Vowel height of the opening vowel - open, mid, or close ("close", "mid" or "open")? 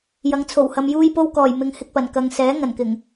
open